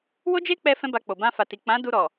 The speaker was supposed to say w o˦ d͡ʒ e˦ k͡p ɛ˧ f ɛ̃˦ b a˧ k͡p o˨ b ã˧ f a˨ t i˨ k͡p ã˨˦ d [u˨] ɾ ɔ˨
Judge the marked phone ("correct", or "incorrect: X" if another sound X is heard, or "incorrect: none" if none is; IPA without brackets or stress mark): incorrect: u˧